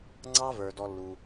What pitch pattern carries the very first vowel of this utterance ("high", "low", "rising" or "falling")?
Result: high